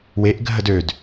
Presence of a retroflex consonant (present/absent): absent